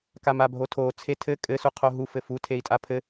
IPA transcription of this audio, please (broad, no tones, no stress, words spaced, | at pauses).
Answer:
kamabʱotʰo t͡sʰetʰɘ kʼɘ suqʰoɦu fɘfu tʰei̯tʼapʰɘ